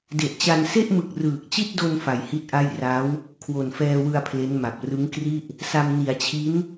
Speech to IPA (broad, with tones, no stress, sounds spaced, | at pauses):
d e˨˩ ʔ t͡ɕ a˧ n s e˥˩ ʔ m ɯ˨˩ k̚ r ɯː˨˩ k̚ t͡ɕ i˥˩ t̚ d o˧ n f a˨˩ j h i˥˩ t̚ ʔ a˥˩ j r a˦˥ w | kʰ w o˨˩ n f ɛː˧ w ɯ˧ a̯ pʰ l e˦˥ n m a˨˩ p̚ r ɯ˦˥ ŋ k r i˥˩ ʔ | s a˧ m n i˩˦ a̯ t͡ɕʰ i˦˥ n